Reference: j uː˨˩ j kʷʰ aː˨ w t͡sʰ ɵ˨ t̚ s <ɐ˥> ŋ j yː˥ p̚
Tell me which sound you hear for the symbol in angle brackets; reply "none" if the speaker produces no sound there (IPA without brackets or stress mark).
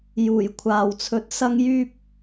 ɐ˥